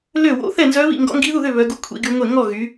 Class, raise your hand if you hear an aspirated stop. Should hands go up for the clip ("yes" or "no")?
yes